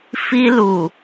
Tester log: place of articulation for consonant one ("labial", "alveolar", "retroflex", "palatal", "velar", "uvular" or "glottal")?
labial